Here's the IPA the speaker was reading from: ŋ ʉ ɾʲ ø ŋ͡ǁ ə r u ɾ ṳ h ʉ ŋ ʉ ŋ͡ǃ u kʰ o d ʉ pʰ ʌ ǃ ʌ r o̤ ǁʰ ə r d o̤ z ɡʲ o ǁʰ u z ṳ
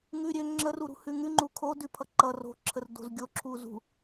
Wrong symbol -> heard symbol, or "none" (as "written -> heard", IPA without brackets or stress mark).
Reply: none